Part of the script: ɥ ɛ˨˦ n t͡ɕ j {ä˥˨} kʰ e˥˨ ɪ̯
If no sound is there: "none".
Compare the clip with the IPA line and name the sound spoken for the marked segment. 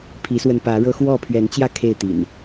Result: ä˥˨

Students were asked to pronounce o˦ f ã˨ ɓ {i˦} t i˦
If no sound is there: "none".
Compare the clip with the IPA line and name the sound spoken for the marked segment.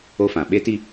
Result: e˦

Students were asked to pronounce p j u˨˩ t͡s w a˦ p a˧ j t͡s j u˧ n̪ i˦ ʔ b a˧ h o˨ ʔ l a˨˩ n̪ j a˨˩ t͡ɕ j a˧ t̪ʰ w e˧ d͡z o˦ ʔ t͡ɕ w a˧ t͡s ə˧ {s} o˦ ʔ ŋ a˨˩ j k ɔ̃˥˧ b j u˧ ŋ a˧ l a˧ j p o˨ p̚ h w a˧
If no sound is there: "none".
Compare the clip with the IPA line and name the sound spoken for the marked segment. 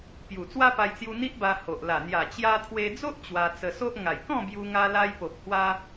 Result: s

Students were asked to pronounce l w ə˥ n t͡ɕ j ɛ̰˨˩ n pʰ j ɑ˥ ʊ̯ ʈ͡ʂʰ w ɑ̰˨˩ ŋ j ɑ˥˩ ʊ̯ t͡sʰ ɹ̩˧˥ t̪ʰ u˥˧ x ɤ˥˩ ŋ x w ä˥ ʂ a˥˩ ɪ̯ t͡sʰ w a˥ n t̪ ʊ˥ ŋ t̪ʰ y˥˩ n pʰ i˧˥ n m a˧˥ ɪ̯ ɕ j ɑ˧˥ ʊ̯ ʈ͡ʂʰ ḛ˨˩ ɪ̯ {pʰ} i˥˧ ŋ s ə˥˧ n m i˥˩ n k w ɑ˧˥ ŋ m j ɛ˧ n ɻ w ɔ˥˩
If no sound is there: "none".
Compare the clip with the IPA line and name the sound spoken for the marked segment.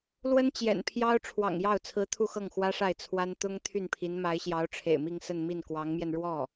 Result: m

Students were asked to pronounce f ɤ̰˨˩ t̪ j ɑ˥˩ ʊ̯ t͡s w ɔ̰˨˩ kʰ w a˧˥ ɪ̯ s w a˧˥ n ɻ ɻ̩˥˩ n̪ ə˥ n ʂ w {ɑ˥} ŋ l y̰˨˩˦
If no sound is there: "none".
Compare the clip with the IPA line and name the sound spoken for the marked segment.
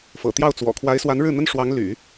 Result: ɑ˧˥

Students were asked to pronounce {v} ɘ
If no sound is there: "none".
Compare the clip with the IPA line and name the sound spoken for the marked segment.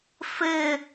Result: f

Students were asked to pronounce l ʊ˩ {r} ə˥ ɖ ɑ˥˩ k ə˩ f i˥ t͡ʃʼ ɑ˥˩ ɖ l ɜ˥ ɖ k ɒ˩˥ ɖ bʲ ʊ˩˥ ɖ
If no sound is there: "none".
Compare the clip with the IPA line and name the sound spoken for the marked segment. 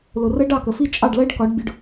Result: r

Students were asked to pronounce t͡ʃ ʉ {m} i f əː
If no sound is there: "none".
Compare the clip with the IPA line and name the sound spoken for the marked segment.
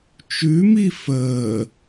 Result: m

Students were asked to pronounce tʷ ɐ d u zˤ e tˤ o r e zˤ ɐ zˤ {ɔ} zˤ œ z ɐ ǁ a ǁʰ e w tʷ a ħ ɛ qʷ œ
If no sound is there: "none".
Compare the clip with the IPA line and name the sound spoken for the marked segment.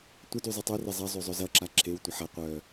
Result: o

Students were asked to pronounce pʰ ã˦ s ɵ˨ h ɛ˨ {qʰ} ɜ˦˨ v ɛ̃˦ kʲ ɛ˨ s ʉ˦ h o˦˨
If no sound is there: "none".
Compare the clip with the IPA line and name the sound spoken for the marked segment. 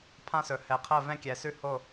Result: qʰ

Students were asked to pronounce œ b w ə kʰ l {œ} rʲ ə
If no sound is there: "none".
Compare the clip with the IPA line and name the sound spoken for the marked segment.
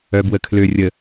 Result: ø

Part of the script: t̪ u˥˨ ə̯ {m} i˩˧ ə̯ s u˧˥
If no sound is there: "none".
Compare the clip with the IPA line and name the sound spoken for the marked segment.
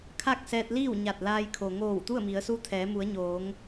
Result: m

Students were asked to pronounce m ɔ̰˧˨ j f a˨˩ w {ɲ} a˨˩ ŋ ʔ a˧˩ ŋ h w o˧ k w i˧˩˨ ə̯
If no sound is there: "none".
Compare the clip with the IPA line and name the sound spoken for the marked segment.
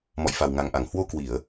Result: ŋ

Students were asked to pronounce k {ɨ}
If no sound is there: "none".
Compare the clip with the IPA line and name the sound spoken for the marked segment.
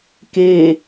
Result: e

